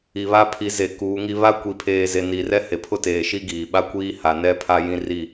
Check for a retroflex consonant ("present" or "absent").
absent